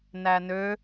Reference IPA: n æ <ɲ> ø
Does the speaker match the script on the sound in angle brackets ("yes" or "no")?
no